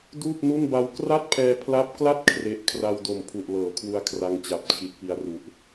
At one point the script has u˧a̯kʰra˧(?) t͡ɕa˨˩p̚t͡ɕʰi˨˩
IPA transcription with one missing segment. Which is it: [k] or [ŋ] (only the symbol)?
ŋ